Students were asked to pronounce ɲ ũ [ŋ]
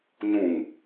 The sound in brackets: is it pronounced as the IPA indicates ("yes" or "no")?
yes